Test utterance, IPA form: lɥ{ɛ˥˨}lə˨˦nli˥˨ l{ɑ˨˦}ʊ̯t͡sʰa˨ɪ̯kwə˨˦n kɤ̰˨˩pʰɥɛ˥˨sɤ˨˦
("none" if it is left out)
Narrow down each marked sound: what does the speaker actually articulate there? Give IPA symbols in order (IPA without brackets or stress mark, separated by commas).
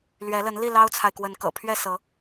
ɛ˨˦, ɑ˦